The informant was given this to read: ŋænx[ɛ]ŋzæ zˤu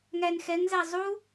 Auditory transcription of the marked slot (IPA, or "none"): ɛ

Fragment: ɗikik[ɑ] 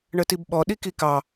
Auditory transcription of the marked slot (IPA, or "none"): ɑ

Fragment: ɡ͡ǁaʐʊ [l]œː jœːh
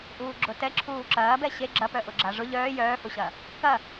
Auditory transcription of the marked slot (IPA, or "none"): ʎ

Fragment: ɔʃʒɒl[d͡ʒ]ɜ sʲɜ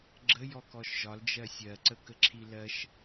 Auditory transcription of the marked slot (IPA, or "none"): d͡ʒ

